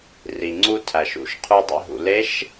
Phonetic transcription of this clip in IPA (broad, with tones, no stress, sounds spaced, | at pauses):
r i˩ ŋ͡ǀ u˧ tʰ æ˩ ʃ ṵ˩˧ ʃ qʰ u˧ dˤ ḛ˧ ɦ ṵ˩ l e˧˥ ʃ